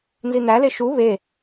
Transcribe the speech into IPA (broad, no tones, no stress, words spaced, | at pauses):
nzin̪æle ʃu βe